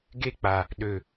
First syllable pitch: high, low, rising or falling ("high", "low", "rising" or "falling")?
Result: high